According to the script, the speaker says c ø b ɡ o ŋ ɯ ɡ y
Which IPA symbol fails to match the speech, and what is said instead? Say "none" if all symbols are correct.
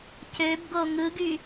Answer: none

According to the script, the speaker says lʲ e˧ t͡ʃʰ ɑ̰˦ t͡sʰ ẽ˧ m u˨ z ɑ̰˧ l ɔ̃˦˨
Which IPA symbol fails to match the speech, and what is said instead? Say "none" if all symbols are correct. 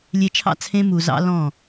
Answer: none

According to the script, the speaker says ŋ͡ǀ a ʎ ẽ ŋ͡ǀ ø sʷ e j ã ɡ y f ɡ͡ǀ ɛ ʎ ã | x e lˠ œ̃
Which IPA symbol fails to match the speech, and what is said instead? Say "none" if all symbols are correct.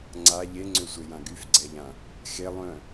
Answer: ẽ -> e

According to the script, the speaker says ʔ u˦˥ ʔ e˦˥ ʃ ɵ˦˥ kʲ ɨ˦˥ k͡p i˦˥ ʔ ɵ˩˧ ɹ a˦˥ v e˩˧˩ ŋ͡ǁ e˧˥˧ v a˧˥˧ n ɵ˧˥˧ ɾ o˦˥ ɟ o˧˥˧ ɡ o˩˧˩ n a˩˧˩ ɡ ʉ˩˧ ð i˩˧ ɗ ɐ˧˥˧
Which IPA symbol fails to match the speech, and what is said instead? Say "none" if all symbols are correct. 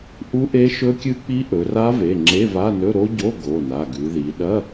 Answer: ɹ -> r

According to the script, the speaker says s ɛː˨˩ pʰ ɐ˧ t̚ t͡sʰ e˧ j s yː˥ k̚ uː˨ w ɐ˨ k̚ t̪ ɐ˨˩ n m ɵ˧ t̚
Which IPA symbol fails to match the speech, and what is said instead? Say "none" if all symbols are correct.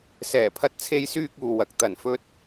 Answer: m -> f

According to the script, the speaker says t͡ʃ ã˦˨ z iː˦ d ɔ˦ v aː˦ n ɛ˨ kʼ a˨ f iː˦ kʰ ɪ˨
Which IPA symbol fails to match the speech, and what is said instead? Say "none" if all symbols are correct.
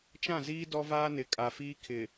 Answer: ɛ˨ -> ɪ˨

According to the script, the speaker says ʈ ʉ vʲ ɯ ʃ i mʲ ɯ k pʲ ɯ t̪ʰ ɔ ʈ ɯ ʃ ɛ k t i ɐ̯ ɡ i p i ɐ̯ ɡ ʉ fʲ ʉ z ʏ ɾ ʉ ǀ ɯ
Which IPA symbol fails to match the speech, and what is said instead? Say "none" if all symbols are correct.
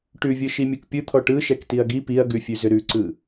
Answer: none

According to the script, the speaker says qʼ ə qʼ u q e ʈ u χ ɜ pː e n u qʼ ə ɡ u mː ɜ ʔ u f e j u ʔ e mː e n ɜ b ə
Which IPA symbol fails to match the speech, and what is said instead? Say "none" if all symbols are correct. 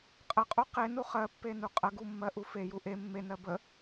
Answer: ʈ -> n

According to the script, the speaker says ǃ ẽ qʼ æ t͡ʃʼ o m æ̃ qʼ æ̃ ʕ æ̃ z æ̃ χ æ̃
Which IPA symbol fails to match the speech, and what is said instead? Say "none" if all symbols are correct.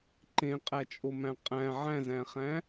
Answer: none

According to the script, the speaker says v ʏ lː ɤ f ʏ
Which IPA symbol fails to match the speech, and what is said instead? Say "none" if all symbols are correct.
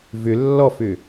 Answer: ɤ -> ɔ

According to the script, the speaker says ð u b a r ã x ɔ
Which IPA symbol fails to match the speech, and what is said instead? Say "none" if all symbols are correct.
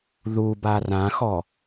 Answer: none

